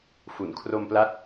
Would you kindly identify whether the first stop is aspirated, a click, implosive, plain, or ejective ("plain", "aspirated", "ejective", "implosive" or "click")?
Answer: aspirated